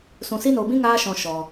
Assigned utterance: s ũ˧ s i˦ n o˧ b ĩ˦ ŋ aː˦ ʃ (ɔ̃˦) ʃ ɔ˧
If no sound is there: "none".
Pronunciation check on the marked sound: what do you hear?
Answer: ɔ̃˧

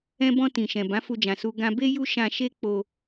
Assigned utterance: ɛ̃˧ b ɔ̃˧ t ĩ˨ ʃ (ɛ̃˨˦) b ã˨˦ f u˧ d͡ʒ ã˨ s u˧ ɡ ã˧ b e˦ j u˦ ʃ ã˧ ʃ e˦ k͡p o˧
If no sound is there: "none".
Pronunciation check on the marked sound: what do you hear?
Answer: ɛ̃˨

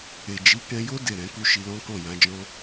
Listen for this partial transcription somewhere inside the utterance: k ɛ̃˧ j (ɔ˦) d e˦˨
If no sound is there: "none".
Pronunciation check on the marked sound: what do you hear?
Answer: o˦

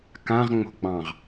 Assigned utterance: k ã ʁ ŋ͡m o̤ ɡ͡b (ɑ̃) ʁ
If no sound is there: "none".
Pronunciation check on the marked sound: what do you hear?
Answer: ɑ̃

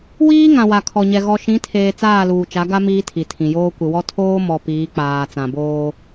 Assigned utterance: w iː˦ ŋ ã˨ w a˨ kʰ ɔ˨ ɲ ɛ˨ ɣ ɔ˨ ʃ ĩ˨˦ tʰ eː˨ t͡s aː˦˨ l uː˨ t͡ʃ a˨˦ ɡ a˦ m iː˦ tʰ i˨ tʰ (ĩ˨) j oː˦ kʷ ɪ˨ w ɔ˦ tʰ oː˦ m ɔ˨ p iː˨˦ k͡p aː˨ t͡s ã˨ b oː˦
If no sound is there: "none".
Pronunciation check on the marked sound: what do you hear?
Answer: ĩ˨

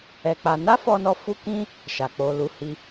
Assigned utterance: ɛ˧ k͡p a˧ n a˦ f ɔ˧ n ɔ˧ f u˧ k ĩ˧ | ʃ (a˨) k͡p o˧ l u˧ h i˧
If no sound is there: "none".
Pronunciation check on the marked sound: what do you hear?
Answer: a˨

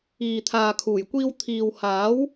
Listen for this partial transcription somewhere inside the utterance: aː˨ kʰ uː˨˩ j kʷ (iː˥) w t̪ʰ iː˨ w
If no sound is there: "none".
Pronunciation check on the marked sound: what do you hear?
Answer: iː˧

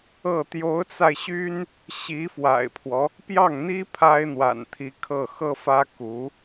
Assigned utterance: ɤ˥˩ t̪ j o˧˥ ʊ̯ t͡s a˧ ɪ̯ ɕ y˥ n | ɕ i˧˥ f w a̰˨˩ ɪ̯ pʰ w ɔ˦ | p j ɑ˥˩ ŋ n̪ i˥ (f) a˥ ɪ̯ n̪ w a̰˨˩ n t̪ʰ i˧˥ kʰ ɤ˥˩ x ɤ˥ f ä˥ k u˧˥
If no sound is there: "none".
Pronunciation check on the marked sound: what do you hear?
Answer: pʰ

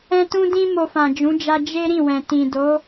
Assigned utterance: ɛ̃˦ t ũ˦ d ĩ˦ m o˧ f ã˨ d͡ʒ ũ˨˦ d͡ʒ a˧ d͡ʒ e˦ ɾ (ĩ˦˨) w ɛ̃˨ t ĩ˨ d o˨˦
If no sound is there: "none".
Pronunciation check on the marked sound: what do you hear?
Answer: ĩ˦˨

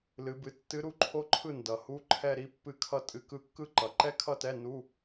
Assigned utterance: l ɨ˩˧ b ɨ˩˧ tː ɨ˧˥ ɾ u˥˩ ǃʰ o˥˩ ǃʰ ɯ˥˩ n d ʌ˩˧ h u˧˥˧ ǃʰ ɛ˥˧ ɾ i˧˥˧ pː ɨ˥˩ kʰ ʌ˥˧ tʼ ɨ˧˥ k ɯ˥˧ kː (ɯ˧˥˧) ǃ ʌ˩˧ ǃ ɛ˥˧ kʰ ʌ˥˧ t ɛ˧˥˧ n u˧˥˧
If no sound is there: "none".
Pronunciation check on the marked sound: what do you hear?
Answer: ɯ˥˧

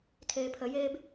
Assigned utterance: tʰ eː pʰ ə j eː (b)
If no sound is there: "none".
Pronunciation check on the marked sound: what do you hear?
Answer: b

